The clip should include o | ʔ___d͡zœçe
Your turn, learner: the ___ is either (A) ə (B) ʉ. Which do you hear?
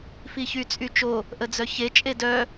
A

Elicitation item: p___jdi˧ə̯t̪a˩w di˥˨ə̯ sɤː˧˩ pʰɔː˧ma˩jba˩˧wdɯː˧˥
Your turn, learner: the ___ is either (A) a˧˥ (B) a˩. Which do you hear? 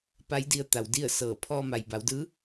A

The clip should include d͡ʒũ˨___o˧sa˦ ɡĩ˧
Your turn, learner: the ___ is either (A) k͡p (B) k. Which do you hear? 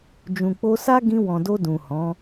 A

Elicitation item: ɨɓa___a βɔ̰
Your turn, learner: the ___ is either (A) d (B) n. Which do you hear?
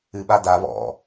A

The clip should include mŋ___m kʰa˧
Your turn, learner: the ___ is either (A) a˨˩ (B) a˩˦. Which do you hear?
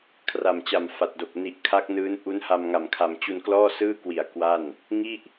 A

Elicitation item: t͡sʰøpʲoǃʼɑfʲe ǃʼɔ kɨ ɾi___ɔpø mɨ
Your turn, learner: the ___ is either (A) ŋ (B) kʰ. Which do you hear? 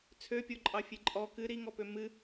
A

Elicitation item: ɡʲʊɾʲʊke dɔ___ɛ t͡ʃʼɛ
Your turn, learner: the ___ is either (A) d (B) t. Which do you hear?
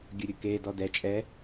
A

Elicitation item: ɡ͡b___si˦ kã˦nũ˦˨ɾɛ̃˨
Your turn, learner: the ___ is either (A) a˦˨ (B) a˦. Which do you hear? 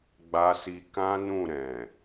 B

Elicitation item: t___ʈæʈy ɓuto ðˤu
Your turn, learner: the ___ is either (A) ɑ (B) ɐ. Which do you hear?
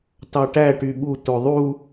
A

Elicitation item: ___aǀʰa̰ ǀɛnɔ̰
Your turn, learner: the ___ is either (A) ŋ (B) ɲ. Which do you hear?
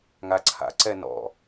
A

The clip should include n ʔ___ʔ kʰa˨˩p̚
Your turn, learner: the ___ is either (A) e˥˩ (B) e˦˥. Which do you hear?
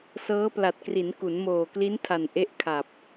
B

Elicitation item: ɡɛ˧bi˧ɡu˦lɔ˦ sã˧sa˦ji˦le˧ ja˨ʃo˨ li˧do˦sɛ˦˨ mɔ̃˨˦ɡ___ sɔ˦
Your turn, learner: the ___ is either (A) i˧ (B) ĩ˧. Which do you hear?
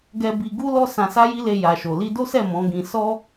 B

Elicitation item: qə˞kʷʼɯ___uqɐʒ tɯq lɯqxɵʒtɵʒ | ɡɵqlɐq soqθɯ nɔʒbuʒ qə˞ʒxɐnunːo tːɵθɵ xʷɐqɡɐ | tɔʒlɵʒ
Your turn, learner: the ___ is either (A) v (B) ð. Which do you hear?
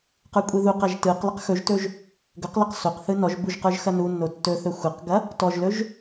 B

